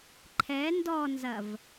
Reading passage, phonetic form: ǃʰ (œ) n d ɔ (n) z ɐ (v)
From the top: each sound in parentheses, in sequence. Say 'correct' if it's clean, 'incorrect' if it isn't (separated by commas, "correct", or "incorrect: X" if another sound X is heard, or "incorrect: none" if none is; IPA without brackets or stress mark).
incorrect: ɛ, correct, correct